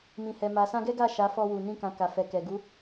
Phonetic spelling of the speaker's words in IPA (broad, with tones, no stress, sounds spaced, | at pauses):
m ĩ˨ h ɛ˨ m a˨ s ã˧ ɡ ɛ˦ ɡ a˦˨ ʃ a˨˦ f ɔ˧ w u˨ n ĩ˧ k ã˨ k a˨ f ɛ˨ k ɛ˨ ɡ u˨˦